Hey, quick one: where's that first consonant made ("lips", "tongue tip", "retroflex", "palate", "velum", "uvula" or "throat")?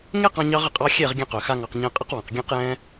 velum